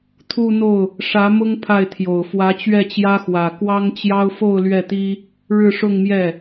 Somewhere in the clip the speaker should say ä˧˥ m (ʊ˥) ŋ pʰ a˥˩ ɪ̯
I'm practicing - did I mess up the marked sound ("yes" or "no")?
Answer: no